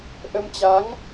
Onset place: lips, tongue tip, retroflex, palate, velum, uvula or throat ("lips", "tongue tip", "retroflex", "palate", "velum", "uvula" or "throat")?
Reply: throat